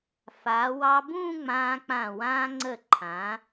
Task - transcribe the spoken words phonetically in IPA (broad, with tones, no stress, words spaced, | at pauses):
fa˩˧wɑ˧ bũː˥˧ŋ͡mãː˧k͡pã˧˩ wãː˧ŋ͡ǀə˧˩ǃʰã˩˧